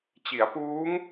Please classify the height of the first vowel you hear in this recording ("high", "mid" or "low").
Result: high